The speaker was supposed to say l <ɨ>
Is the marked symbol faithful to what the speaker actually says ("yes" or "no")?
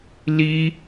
no